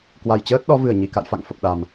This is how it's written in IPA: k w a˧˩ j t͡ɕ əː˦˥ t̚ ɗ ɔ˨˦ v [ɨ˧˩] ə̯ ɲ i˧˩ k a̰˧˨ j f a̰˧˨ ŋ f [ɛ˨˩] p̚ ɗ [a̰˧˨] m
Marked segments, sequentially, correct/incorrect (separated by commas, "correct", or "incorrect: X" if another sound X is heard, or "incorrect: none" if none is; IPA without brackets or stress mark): correct, incorrect: ə˨˩, incorrect: a˨˩